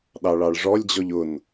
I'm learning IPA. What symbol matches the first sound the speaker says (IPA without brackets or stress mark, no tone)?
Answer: ɗ